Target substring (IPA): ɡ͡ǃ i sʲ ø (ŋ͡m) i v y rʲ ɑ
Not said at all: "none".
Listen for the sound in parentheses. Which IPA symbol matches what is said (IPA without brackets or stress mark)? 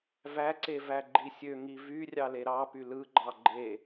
ŋ